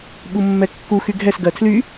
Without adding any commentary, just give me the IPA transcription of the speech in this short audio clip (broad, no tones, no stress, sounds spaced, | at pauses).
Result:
ɓ u mː ɛ kː u x y ɡʱ ɛ s ɡ ɜ tʰ l y